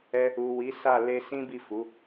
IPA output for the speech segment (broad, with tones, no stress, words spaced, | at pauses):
ɛ˧ | u˨ wi˨˦sa˦˨ le˧sĩ˦bi˦˨ fu˨˦